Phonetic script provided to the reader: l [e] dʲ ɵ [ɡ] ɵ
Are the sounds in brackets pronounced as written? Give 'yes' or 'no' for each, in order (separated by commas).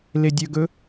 yes, yes